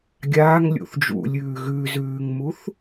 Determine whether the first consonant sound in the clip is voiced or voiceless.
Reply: voiced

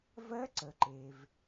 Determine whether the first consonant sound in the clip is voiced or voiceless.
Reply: voiced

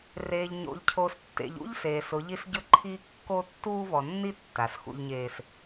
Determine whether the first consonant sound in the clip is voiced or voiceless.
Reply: voiced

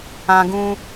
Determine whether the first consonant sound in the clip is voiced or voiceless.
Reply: voiced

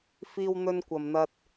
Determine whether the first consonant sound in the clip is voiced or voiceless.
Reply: voiceless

